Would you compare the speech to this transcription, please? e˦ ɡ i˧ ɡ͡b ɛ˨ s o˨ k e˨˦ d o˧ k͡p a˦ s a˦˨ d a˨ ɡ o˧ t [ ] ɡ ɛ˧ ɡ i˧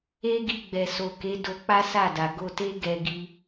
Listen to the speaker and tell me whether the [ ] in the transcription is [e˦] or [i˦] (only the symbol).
e˦